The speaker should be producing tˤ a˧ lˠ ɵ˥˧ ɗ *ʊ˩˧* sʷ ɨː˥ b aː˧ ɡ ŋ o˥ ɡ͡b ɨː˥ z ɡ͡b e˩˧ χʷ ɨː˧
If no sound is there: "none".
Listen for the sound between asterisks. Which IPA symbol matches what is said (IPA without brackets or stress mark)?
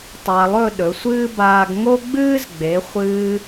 ɵ˩˧